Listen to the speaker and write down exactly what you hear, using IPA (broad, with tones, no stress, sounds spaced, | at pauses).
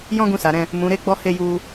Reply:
j ɔ̃˦ ɡ ũ˧ s a˨ ɾ ɛ̃˧ | m ũ˨ ɾ e˧ ɡ͡b ɔ˧ h e˧ j u˧